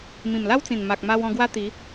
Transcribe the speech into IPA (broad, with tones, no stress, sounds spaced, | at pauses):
m ĩ˨˩ m l a˦ w t͡s ĩ˨˩ n m a˨ k̚ m a˧ w ɔ̃˧ ɡ w a˦ t̪ i˨˦